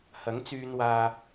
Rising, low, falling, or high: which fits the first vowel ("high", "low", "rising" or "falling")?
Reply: rising